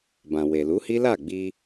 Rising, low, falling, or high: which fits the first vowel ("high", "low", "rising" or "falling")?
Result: low